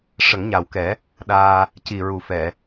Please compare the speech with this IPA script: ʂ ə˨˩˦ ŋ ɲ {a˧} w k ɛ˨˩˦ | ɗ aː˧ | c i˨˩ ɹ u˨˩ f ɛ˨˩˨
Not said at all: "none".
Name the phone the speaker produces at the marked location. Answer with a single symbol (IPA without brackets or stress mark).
a˨˩